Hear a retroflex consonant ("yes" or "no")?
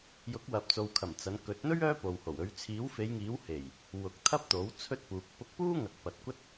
no